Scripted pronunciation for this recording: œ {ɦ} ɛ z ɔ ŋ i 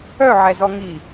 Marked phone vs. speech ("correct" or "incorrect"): incorrect